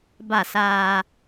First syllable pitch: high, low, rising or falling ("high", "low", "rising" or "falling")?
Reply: falling